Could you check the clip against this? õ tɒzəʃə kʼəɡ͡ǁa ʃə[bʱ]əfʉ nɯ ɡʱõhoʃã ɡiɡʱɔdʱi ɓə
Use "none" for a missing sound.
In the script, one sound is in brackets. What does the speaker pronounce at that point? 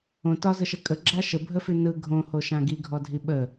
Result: bʱ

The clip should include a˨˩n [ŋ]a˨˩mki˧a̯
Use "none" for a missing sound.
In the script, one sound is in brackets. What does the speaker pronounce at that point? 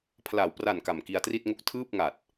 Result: k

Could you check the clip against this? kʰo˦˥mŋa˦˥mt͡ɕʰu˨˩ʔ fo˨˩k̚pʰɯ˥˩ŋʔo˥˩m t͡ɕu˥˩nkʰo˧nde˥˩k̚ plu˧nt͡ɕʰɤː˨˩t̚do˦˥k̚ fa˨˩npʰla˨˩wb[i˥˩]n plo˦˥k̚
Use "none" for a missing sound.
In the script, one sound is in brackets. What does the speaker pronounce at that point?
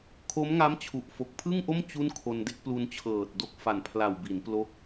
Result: i˩˦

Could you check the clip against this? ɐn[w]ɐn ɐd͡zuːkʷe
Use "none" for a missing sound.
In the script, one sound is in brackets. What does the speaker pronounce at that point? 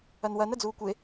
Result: w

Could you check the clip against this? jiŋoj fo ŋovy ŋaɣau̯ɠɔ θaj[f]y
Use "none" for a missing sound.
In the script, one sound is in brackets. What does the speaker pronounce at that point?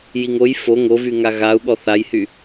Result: h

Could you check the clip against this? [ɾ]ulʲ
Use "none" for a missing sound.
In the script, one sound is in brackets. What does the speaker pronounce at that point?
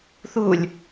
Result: θ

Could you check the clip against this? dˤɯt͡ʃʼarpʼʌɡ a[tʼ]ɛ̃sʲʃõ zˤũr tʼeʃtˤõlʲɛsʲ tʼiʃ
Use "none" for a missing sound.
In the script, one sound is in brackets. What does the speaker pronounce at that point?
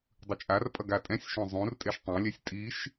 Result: tʼ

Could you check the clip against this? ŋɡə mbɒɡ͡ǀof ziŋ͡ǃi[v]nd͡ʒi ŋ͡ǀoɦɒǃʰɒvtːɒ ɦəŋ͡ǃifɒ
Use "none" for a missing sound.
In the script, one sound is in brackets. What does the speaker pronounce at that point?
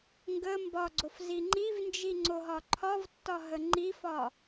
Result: v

